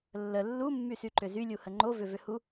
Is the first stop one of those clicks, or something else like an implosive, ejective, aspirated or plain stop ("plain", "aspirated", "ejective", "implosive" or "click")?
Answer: click